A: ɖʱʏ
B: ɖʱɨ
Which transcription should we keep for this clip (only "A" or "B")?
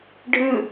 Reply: B